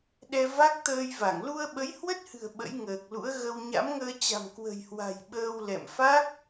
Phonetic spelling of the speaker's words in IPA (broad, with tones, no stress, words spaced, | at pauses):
ɗɛ˧va˦˥k̚ t̪əː˧jva˧˩ŋ lu˧ə̯ ɓə˨˦jhwə˦˥t̚hɨ̤˨˩ə̯ ɓə̰˧˥jŋəː˨˩k̚lṵ˧˥ə̯ ɣə˧w ɲa̰˧˥mŋəː˧t͡ɕa̤˨˩m kwə̤˨˩jhwa̤˨˩j ɓəː˧wlɛ̰˧˨m fa˦˥k̚